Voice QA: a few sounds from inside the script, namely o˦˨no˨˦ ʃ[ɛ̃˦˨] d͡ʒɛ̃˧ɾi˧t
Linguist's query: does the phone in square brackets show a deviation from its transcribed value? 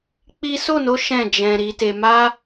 no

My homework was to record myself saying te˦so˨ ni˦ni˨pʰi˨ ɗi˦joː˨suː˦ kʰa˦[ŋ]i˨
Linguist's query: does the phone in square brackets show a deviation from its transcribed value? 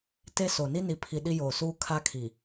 yes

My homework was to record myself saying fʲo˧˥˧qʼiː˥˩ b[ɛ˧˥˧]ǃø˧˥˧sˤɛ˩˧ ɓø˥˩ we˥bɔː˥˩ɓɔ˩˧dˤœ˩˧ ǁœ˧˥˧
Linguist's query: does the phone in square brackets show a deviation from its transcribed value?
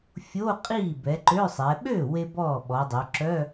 yes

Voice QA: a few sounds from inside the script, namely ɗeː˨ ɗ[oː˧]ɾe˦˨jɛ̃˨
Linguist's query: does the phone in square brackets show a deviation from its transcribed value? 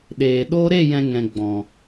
no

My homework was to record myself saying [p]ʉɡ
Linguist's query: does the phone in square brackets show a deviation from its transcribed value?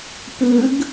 no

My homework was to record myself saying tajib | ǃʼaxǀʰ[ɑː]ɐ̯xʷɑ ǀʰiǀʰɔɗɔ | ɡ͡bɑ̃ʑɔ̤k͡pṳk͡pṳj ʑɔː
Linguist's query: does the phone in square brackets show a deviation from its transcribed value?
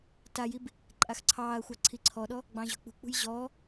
no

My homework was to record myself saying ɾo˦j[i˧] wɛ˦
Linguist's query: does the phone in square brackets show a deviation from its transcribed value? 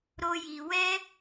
no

